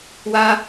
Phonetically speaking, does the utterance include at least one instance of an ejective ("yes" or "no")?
no